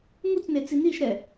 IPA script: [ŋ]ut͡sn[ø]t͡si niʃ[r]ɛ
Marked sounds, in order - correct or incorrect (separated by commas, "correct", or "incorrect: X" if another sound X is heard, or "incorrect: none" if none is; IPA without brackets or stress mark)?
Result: correct, incorrect: e, incorrect: ɾ